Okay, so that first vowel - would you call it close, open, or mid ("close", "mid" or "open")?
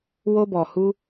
mid